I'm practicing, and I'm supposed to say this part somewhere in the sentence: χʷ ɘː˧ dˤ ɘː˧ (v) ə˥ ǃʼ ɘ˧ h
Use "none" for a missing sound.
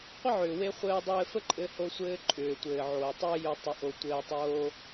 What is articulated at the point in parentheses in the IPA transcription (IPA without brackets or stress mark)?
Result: f